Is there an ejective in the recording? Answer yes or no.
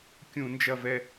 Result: no